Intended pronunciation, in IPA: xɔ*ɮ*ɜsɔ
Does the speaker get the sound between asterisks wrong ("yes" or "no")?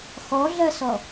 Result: no